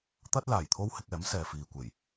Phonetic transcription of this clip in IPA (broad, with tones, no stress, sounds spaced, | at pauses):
t̪ ɐ˥ t̚ l aː˨˩ j t̪ʰ o˥ w h ɪ˧ k̚ ɛː˨˥ m s ɛː˨ f iː˨ kʷ e˨˩ j